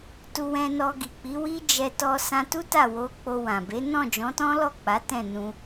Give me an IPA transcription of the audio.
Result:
tu˧wɛ̃˧nɔ˧ ɡi˨k͡pi˨˦wi˦ d͡ʒɛ˧ tɔ˧sã˧tu˦ ta˦˨wo˨˦ k͡po˧wã˨ be˨˦ nɔ̃˦˨d͡ʒɔ̃˨˦tɔ̃˦lɔ˦˨ k͡pa˨˦tɛ̃˦˨nũ˧

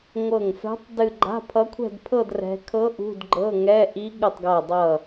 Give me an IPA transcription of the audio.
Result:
ŋʷɤ˧˩ŋfɛ̤˧˥tˤ dɨ˥˧ ɡ͡ǃa̤˧˥˧pʰʌ˧˥kʷʰɛ̤˥˧dpʰɤ˥˧d rɛ̤˧˥ kʰɤ˧˥ ʔṳ˧˥˧dɡ͡ǃɤ˧˥˧ŋɛ˧˥˧ ʔi˧˥ ɠɨ˧˩tˤɡa˧˩dˤʌ˧˩

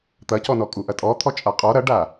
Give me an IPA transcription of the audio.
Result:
t̪ɐcɔnɔ kʼuʔɐtʼɔt̪ʰɔ t͡ʃʼaqʼɔ ɾɐɖa

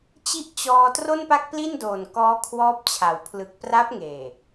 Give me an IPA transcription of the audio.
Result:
t͡ɕi˦˥ʔt͡ɕɔː˧ tro˥˩npa˥˩k̚pli˥˩ndoː˨˩n kɔː˦˥kʰwɔː˦˥p̚t͡ɕʰa˩˦w pʰlɯ˨˩k̚pra˦˥p̚ŋeː˨˩

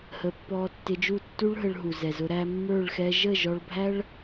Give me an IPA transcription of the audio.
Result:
hə˨˦pːɔ˧ tːɪ˧d͡ʒu˦˨ tːu˦ɭ ɦə˧ɭɦu˨zɛ˨zʊ˧ ɾæ˧mːə˞˦˨ɭ xɛ˧ ʒə˦˨ʒɔ˧ɭbʱæ˦ɭ

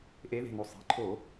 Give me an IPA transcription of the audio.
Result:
ʔe˨˦ðe̤˩˧˩no˧˩ sˤi̤˩˧˩ǃʰo˧˩˧

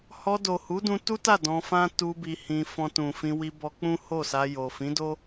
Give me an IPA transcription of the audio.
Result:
hɔ˧do˨hu˨˦dũ˧ tu˦ta˦˨ dɔ̃˧fã˦ tu˧ bi˧hĩ˧ fɔ̃˧tũ˨fĩ˧wi˧ bɔ˧k͡pũ˦ ho˦˨sa˧ jo˨fĩ˨˦do˦

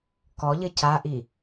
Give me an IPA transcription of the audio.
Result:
kɔʎɘ caʔi

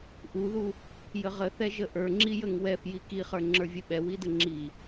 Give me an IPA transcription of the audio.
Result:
ʔuðu | jəʁəθɛ ʒəʔə˞ŋ͡ǁi jəŋwɛf jikiχə˞ ŋ͡ǁə˞vʲəɓɛ widəŋ͡ǁi

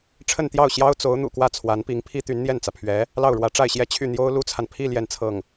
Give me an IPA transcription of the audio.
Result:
ʈ͡ʂʰə˥˧nt̪jɑ˥˩ʊ̯ ɕjɑ˥ʊ̯t͡so˧˥ʊ̯n̪ṵ˨˩kwä˥˩ t͡sʰwa˧˥npi˧˥ŋpʰi˥ t̪y˧˥nn̪jɛ˥˩nt͡sä˩pʰɥɛ˧˥ | lɑ˥˩ʊ̯ɻwä˧˥ʈ͡ʂa˥˧ɪ̯ɕjɛ˥˧ t͡ɕʰy˥˩n̪jo˥ʊ̯ lu˥t͡sʰa˨n pʰi˥˧ ljɛ˥˧nt͡sʰɤ˥˩ŋ

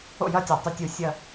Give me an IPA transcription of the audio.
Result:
o̰˥˨jɐ˥˨tʲa˧˩˧ tˤɵ˥˨tʲu˥˨ sʲɐː˥˨

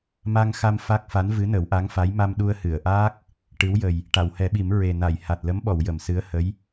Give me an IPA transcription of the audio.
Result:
ma˧ŋxa˧m fa˦˥k̚fa˧˥n vɨ˧˥nə˨˩˦wʔa˧˥ŋfa˧˥j ma˧mɗu˧ə̯hɨ˨˩˨ə̯ʔaː˦˥k̚ | ʈɨ˧˥wjə˨˩j | ʈa˨˩˨whɛ˨˩˦ɓi˨˩˦m ɹe˨˩na˨˩˨j ha˨˩t̚lə˧˥mɓɔ˨˩˨w jə˨˩˨msɨ˧˥ə̯ hə˧˥j

